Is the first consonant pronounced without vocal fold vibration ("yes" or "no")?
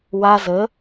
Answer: no